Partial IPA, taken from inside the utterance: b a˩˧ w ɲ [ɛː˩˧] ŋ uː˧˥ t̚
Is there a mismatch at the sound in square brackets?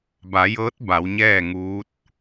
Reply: yes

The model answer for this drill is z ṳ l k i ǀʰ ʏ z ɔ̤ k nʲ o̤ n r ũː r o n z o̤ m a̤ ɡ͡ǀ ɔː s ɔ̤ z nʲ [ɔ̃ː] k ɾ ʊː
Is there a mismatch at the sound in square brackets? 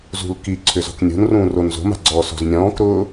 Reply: no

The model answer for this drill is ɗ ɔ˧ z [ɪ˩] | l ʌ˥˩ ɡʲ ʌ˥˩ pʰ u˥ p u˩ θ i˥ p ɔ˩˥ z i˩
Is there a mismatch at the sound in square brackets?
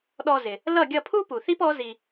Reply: no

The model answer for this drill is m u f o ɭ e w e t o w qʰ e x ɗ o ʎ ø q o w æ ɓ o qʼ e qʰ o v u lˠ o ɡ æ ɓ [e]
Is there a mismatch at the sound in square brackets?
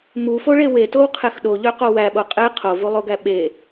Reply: no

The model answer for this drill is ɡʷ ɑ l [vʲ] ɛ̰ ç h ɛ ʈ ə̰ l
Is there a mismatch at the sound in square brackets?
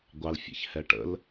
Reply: yes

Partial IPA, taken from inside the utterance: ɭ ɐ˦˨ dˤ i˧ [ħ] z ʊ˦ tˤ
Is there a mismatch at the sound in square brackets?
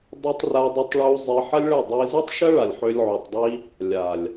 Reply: yes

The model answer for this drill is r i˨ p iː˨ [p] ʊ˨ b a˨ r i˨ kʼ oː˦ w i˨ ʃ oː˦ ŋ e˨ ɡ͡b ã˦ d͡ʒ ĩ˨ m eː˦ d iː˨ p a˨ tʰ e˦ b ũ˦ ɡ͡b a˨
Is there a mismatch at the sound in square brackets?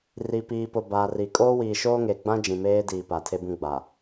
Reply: no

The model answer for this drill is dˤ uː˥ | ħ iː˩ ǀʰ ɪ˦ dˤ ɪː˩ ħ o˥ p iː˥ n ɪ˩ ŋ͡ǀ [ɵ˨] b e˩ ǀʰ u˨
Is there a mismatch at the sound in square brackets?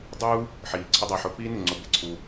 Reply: yes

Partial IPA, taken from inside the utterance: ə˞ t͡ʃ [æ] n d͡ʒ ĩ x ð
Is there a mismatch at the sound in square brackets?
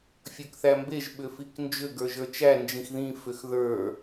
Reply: no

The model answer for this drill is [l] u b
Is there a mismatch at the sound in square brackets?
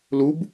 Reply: no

